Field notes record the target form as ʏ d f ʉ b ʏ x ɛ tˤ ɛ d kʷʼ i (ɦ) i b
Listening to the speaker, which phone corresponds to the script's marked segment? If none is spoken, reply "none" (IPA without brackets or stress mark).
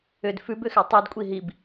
ɦ